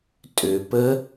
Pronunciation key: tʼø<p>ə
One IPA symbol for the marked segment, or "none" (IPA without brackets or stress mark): p